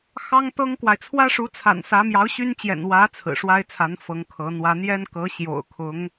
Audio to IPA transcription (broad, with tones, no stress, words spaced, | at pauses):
xɑ˥ŋt̪ɤ˥ŋkwa˨ɪ̯ t͡sʰwä˥ʂu˧˥t͡sʰa̰˨˩n sä˧˥mjɑ˧˥ʊ̯ɕy˥nt͡ɕjɛ̰˨˩n wä˧˥ t͡sʰɹ̩˨˩ʂwa˥ɪ̯t͡sʰa˧˥n fɤ˧˥ŋkʰɤ˧˥n̪wä˥ n̪jɛ˥nkɤ˧˥ɕjo̰˨˩ʊ̯kʰʊ˧˥ŋ